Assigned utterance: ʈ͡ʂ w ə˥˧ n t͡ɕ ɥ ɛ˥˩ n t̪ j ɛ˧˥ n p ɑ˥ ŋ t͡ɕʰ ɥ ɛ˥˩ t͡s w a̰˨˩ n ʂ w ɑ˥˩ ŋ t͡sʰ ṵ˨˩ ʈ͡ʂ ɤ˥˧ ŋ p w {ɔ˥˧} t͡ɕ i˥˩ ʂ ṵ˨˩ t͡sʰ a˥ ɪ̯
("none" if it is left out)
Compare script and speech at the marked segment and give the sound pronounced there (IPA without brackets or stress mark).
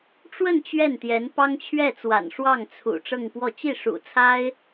ɔ˥˧